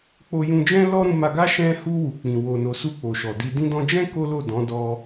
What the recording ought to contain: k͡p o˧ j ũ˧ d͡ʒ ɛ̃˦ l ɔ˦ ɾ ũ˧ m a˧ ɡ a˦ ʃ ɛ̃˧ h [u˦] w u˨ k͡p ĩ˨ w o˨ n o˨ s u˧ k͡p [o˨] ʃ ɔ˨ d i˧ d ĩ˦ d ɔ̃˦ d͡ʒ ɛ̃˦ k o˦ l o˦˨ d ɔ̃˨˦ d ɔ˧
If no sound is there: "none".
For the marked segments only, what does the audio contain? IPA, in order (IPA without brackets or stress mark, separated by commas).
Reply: u˧, o˨